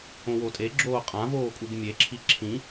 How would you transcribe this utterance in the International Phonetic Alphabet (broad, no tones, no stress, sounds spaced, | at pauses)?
õ w o tʼ e ɡ͡ǁ oː qʼ ã v oː kʼ u ɡ mʲ e ǁʰ i ǁʰ ĩ